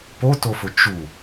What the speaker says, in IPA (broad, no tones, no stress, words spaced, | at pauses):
potofʊ t͡ʃu